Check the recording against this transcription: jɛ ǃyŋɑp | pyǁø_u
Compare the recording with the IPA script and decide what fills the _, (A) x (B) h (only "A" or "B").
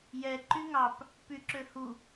B